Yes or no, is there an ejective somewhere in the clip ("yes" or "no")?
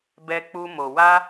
no